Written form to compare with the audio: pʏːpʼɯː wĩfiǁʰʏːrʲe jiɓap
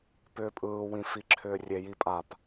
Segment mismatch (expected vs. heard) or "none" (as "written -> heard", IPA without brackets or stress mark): ɓ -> pʼ